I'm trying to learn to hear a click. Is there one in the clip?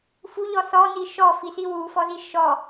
no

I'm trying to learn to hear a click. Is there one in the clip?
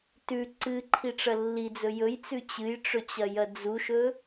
yes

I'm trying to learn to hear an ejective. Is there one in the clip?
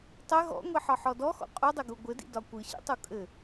yes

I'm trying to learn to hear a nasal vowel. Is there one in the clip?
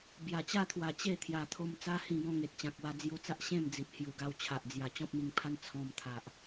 yes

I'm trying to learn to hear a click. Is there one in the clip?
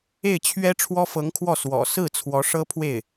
no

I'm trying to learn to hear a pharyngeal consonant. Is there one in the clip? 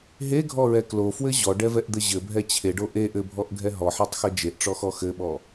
yes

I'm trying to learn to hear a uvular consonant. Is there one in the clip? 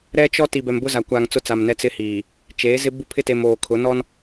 no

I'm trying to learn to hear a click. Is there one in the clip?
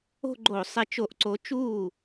yes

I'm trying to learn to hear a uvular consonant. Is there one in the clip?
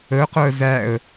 yes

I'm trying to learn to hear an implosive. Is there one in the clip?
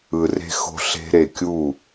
no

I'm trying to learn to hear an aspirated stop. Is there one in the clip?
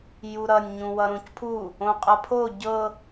yes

